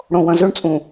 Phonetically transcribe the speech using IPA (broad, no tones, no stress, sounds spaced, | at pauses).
ɽ õ w ɐ̃ z ɵ ɳ t͡sʼ ũ